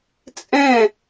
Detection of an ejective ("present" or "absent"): present